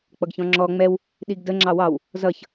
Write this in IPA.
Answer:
k͡p ʌ ɡ ç ɔ̃ ŋ͡ǁ ɔ ŋ͡m ɛ w | ɗ i ɡ d ə ŋ͡ǁ ɑ w ɑ w | z ʌ ç

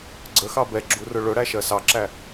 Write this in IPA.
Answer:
ɡ͡ǀ ə x ɑ b ɛ ɡ͡ǁ u r ʊ ɭ ʊ ɽ æ ʃ ɜ s ɑ ǁ æ

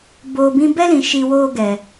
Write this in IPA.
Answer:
b oː˨ b ĩ˧ b ɛ˦ l ĩ˨ ʃ i˧ w oː˦ ɡ ɛ˨

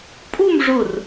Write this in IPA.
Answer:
pʼ u˥˧ m ʐ ʊ˧˩ r

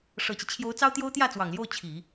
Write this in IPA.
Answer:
ʂ ɤ˨˩ t͡ɕ i˦ t͡ɕʰ j o˧˥ ʊ̯ t͡s ɑ˥ ʊ̯ t̪ j o˥ ʊ̯ t̪ j ä˥˩ t͡s w ɑ˨˩ ŋ l j o˥˩ ʊ̯ t͡ɕʰ i˨˩˦

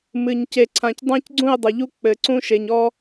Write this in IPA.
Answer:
m ɨ˨ ɲ c e˨ ǀʰ ã˨ c dˤ ã˦ c ɡ͡ǀ ũ˦˨ ɪ̯ dˤ ɐ˨ ʎ u˦ k͡p ɘ˨ ǀ ũ˦ ʃ e˨ ɲ ɔ˦

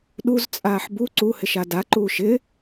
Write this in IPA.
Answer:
ɗ u z t͡sʼ aː ħ b u ǀ u h ɪ ʃ a d a ǃ uː ʃ ɪ

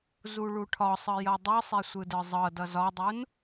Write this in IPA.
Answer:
z u ɭ u ʈʰ ɒ sˤ ɯ j ʌ dˤ ɯ sˤ e sʷ ɯ d ɯ zˤ ɤ d ʌ z ɒ dˤ u n

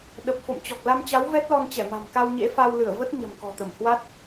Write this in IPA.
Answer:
ɗ ə˨˩ p̚ f o̰˧˨ m t͡ɕ ɔ˨˩ k̚ l a˧ m t͡ɕ a˨˦ w v ɛ˦˥ t̚ l ɔ˧ n t͡ɕ ɛ˧˩ m a̤˨˩ m k a˧ w ɲ ḛ˧˥ f a˧ w l ɨ˧˩ ə̯ v ə˦˥ t̚ ɲ ə̤˨˩ m k ɔ̤˨˩ t̪ ə˧˩ m h w a˦˥ t̚

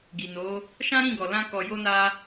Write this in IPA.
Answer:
ɡ i˨ n o˨˦ | ʃ ã˦ ɾ ĩ˦˨ ɡ ɔ˨ l ã˧ k ɔ˨ j o˧ n a˧

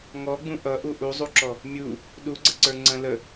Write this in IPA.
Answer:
ŋ ɔ ɡ͡b ũ ʔ ʌ ʔ u ʔ u zˤ u ǁ ɔ | mʲ u | ɗ u ɡ͡ǀ ə ǀ ə˞ ŋ͡ǀ ə̃ l ə

